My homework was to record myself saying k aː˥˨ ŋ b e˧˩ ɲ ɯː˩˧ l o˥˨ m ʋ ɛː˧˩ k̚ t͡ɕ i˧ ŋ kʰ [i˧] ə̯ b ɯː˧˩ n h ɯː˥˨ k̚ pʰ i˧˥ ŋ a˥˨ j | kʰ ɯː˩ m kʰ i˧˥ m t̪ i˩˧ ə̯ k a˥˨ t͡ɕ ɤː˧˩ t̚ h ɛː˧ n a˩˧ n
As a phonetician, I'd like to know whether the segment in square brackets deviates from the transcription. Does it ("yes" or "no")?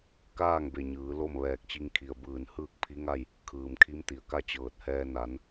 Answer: yes